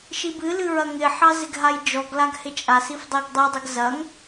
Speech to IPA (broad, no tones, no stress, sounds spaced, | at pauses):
ʃ i b ɨ l ɨ ɹ ɐ ŋ ɪ ħ ɑ z ɪ ɡ ɦ a j d͡ʒ ɔ ɡ l a ɡ h ɪ t͡ʃʼ a s i f dˤ i ɡ dˤ ɨ dˤ ɨ ɡ z ɐ ŋ